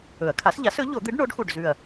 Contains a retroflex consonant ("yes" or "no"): yes